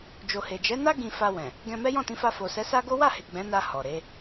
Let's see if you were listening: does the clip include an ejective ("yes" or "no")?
no